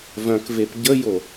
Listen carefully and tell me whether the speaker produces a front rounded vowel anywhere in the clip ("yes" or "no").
yes